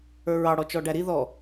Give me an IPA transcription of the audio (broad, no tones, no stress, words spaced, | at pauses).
ə˞ɹɑɽɔ t͡ʃɔɖæɾi ðɔ